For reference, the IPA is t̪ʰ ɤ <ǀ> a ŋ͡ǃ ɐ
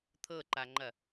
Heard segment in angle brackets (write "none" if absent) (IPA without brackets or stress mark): ǃ